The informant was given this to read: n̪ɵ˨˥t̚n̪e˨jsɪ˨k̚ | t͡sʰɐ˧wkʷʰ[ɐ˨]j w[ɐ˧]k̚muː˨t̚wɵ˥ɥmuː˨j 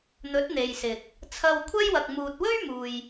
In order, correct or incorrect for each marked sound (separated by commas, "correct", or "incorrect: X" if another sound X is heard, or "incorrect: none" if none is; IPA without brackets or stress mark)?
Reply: incorrect: ɐ˥, incorrect: ɐ˨